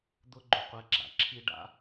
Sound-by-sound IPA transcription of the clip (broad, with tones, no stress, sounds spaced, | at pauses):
d̪ ʊ˦ ɡ͡ǃ ʊ˨ qʷ ɛ˧ ɡ͡ǁ a̰˨ ǁʰ i˦ ɖ a̰˦